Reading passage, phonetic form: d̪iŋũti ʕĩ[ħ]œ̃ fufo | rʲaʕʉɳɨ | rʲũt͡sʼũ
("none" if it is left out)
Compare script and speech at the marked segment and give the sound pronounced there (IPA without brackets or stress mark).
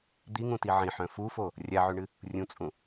ħ